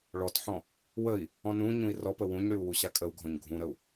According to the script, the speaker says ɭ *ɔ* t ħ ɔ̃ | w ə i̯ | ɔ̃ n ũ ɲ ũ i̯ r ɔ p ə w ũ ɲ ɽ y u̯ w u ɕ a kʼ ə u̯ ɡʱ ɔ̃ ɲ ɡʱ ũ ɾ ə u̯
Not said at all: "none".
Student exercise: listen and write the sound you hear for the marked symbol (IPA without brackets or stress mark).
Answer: ɔ